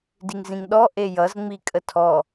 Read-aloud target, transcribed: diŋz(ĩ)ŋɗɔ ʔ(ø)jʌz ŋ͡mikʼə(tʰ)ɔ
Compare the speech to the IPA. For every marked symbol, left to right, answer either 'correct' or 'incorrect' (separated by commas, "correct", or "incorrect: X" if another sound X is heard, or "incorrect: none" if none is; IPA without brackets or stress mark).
correct, incorrect: e, correct